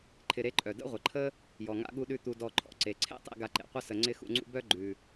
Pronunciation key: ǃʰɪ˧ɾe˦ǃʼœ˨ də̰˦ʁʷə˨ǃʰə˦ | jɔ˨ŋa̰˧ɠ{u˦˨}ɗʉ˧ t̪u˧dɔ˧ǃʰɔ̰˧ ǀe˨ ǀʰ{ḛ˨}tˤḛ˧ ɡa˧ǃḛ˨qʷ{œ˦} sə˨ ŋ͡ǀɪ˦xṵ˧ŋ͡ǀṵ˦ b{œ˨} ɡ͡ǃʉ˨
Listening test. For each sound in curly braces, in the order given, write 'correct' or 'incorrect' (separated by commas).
incorrect, incorrect, incorrect, incorrect